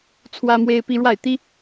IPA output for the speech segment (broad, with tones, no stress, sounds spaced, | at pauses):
t͡sʰ w ä˥ m w e˥ ɪ̯ p i˥ ɻ w a˥˩ ɪ̯ t̪ i˥